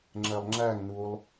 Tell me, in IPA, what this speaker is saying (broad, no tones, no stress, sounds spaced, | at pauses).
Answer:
ŋ͡ǁ ɛ lˠ ŋ͡ǁ æ ŋ n u lˠ